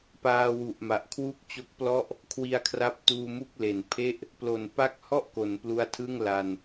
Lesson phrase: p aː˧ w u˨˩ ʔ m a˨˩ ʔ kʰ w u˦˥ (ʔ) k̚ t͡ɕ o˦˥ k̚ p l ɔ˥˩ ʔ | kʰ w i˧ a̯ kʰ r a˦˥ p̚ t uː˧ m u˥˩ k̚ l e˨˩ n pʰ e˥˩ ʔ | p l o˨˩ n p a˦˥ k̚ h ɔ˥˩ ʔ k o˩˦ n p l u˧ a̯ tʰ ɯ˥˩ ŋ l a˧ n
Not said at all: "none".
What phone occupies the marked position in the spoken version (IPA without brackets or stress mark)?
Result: none